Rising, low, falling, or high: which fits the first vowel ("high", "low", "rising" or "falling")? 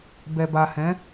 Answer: low